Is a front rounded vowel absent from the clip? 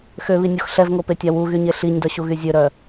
no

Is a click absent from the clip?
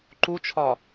no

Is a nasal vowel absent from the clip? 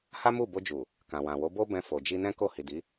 no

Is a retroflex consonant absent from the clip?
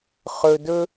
yes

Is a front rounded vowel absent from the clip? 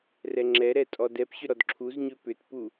no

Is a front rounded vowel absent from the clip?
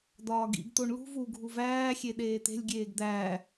yes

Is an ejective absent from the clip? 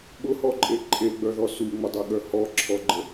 no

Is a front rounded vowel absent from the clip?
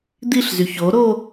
no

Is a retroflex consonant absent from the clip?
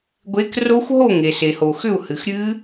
yes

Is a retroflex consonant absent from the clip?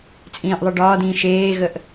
no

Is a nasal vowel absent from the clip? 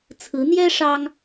yes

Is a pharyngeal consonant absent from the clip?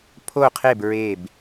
yes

